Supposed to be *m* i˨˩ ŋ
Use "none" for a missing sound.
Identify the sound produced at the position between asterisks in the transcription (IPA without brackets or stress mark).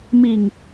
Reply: m